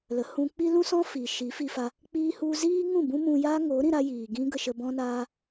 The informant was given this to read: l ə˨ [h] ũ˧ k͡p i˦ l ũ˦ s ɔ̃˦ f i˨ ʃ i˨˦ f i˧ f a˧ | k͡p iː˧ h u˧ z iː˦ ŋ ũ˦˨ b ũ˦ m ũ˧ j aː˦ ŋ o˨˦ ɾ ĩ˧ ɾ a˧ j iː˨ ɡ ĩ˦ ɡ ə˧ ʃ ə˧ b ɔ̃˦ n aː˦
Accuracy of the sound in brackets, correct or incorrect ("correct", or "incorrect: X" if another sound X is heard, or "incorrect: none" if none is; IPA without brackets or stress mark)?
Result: correct